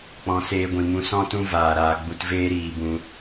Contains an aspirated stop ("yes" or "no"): no